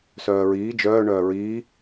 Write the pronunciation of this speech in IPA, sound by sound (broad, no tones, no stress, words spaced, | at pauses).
sœːɹiː d͡ʒœː ɳœːɹiː